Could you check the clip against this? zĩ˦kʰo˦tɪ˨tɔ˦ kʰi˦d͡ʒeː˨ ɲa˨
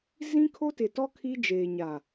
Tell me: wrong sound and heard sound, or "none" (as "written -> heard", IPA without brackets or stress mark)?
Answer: none